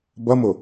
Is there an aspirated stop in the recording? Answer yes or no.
no